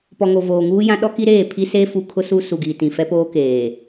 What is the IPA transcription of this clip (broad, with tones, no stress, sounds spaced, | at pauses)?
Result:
p ɔ˨ ŋ o˨ v oː˨ ŋ uː˦ j ã˦ ɗ ɔ˦ k i˦ ɾ eː˦˨ pʰ i˦ s e˦ f u˦ kʰ ʊ˦ s u˦ s u˨ ɡ iː˨ t ĩ˨ f ɛ˦ p oː˦ k eː˨